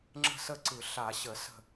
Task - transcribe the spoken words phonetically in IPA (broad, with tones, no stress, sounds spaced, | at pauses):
ŋ͡ǁ ə̤˥˨ s ə˥˨ ǀ ɯ˧˩˧ ɬ a˧˩˧ ɕ ə˧˩˧ s ə̤˥˨